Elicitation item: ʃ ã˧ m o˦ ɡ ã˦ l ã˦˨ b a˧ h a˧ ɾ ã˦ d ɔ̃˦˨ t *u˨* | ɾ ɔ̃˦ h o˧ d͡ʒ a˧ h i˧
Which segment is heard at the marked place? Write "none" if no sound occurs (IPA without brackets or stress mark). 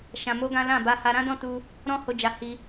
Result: u˧